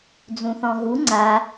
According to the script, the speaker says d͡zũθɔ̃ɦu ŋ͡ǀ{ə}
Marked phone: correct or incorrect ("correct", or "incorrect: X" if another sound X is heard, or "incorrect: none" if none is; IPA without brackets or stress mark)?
incorrect: a